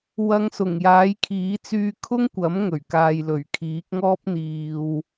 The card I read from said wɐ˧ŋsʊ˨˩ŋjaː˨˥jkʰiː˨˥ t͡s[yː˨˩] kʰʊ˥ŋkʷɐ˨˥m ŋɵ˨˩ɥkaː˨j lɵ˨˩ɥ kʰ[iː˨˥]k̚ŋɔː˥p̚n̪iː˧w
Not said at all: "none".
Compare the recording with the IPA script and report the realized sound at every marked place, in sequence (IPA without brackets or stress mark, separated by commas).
yː˧, iː˨˥